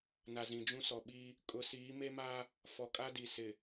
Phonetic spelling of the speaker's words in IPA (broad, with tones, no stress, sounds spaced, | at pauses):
n a˨ z ĩ˨ d͡ʒ ũ˦ s ɔ˨ ɓ i˦ | kʼ ʊ˨˦ s iː˨˦ m e˦ m a˦ | f ɔ˨ kʼ a˦ d i˨ s ɪ˨